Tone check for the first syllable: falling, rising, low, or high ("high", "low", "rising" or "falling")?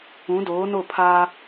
rising